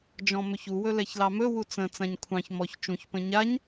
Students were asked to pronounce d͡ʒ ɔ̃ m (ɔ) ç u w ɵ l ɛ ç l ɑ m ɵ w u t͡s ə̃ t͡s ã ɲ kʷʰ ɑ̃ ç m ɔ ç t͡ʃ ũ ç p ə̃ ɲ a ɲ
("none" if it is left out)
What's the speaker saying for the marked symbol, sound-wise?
ɵ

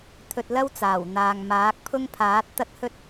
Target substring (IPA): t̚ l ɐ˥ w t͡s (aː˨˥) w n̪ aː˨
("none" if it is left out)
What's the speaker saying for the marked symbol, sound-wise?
aː˨˩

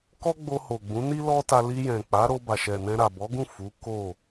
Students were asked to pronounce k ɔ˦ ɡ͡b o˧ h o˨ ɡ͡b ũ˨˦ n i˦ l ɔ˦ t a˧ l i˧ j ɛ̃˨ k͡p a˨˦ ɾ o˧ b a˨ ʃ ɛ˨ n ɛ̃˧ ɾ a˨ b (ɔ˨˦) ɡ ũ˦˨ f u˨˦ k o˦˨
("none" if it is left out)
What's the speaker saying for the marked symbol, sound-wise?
ɔ˨˦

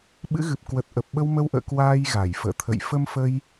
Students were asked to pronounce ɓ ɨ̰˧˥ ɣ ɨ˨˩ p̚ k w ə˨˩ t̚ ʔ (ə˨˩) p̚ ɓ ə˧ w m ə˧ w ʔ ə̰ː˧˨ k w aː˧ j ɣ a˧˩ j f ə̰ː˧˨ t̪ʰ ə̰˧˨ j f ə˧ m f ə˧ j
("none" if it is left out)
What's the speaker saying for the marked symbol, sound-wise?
ə˨˩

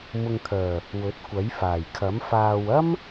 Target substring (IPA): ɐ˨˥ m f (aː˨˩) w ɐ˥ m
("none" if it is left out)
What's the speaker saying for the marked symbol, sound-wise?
aː˨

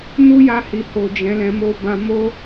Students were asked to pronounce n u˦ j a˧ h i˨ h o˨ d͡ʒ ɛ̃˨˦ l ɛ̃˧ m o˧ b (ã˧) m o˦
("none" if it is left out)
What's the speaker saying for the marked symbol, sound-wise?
ã˧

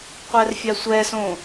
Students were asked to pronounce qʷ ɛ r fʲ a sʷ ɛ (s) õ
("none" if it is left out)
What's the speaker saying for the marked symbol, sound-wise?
s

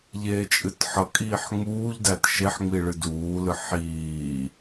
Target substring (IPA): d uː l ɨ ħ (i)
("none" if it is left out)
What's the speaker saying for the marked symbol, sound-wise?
iː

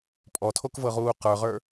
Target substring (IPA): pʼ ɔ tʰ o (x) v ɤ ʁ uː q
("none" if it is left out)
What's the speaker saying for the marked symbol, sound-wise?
k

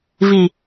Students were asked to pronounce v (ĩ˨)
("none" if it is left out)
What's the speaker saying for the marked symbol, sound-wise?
i˨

